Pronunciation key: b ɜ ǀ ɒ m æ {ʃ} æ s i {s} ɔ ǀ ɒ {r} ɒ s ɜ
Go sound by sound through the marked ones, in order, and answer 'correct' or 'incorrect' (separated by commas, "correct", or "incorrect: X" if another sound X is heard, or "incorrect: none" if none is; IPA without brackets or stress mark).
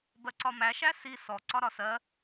correct, correct, incorrect: ɾ